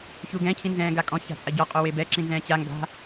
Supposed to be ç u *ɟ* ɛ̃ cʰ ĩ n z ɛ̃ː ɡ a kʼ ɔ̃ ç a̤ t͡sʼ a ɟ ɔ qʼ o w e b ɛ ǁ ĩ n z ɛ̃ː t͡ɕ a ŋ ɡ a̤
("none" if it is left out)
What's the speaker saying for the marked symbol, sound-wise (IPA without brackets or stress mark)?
ɡ